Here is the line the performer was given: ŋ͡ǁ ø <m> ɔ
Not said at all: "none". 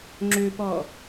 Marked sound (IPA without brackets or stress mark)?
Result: p